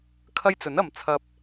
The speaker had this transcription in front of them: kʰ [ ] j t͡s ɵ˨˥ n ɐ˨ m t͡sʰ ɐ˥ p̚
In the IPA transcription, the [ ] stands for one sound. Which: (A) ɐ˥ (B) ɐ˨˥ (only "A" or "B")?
A